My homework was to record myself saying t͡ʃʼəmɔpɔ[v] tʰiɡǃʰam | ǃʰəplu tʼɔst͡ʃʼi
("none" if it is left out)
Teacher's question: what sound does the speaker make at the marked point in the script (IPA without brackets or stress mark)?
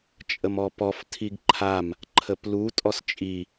f